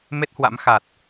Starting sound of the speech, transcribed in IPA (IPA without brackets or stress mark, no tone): m